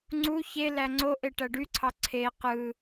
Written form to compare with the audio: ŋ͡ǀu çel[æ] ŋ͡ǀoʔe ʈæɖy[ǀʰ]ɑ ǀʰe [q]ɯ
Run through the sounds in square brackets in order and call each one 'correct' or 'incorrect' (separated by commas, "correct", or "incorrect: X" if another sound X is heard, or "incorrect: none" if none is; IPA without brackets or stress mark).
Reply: correct, correct, correct